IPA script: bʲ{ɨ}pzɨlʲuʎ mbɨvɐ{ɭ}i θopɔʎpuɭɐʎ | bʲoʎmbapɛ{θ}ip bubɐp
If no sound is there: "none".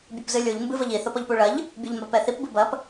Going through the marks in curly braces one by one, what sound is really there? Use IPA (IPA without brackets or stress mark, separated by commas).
ɨ, ʎ, θ